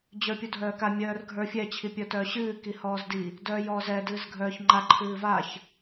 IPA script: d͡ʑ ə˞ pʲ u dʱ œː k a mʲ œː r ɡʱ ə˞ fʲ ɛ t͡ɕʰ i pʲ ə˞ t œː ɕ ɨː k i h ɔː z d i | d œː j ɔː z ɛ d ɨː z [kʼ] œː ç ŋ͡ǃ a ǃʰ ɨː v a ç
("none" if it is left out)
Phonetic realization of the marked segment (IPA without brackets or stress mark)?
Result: ɡʱ